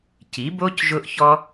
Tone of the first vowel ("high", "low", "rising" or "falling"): rising